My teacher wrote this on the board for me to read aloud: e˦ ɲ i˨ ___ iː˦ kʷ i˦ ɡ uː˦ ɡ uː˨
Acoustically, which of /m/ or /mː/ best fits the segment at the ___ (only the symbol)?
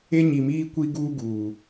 m